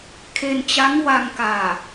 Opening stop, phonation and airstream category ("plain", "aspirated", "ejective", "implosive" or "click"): aspirated